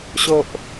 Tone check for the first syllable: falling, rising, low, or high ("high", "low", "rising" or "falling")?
low